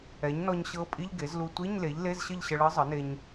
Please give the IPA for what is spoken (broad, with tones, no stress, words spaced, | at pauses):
ɛ˩˥ɲnɔ˧ɲ ɕɤ˧˥pʼi˧˥˧ʎɡe˩˥zlu˧ tʷi˧˥˧ɲle˩˥ʎ le˧˥˧zɕə˥˨ʎɕə˧ ɭɤ˧˥zˤə˩˥ne˧ɲ